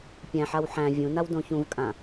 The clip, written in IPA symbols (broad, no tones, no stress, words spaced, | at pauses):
pʲæ̃ħaw ħæ̃ vʲũnaw dõçũvkʼã